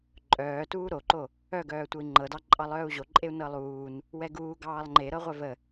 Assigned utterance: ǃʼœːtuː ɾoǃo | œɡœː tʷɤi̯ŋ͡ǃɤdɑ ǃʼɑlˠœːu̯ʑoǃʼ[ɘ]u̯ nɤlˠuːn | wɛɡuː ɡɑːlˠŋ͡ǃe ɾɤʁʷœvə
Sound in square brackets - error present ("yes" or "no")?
yes